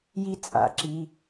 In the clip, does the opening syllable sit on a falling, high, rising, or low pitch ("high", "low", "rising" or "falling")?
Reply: high